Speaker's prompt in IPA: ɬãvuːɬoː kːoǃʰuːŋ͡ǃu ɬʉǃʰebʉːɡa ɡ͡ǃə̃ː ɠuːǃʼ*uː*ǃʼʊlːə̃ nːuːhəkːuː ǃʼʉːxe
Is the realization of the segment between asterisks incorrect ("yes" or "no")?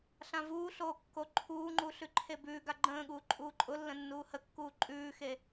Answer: no